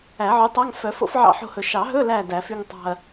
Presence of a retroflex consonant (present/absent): absent